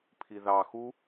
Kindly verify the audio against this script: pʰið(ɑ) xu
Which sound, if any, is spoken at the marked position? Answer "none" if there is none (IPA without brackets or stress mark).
ɑ